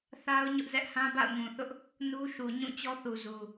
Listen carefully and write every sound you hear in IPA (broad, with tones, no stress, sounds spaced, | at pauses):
θ a˦ ʊ̯ ɲ ʊ˦ ʔ z ɛ˦ ʔ h ã˦ b a̰˦˨ ʊ̯ ŋ ũ˨ θ ʊ˦ ʔ | n u˦ ʃ u˨ ɲ ũ˦˨ t͡ɕ ɔ˦ θ u˨ z u˨